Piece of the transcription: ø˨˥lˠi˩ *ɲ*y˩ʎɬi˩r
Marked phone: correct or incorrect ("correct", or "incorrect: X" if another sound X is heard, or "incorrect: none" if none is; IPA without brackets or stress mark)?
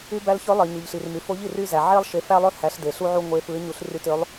correct